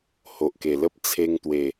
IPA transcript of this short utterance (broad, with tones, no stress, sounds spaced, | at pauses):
h o˨ ʔ k e˨˩ l ə˦ p̚ t͡sʰ e˧ ŋ t̪ w e˨˩